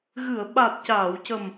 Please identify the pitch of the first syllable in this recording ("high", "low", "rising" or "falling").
low